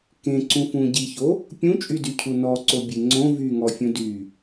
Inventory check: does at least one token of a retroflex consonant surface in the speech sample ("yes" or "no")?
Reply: no